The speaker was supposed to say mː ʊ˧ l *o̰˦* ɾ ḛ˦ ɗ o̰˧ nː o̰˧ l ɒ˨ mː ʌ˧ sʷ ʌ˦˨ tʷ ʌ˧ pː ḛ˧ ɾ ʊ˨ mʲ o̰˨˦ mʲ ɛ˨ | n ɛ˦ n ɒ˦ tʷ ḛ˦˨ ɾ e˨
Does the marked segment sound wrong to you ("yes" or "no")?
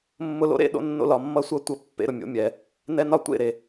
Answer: no